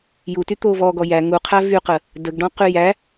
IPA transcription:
juty t̪ovɔɡɔ jæ ŋuqʰæ vyqə | dəɡɖɔ̃qy jæ

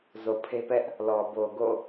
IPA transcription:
zo˨pʰe˦ pɛ˦ʔ | lɔ˨ bo˨ɡo̰˦˨

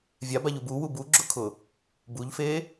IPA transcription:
vʲabaʎub uwu buɡ͡ǁʊkʰʊ | buʎfe

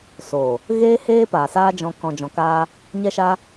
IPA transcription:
soː˨ | ɣeː˦ heː˦paː˨saː˦d͡ʒɔ̃˧ kɔ̃˧d͡ʒɔ̃˧kaː˦ | ɲɛ˦ʃa˦

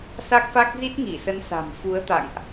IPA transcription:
sa˦˥k̚fa˦˥k̚ zi˦˥t̚ŋi˧˩sə˨˦n sa̤˨˩mfu˨˦ə̯ t̪a̰˧˨ŋʔ

